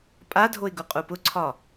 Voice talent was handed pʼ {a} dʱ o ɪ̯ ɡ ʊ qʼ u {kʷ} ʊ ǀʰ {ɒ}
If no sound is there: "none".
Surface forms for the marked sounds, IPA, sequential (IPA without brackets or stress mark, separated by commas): a, p, ɒ